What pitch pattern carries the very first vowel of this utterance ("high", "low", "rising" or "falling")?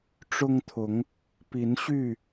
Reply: high